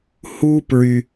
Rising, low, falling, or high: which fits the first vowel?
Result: high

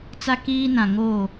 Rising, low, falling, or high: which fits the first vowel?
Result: high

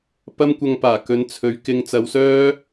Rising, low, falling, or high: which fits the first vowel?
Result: high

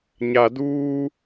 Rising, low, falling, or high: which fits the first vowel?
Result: low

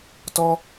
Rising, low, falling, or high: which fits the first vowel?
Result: high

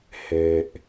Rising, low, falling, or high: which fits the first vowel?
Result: low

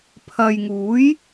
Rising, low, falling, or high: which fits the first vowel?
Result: low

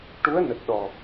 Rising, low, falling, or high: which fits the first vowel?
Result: rising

